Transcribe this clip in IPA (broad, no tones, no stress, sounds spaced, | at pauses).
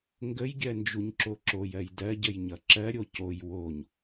ŋ ɡ ə j ɡʲ ɜ n d͡ʒ u ɲ ǁ o ǁ o j ɜ j d ɜ ɟ ə j ɲ ʌ ǁ ɜ ɾʲ o c o j w o ɲ